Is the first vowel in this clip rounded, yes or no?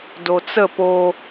yes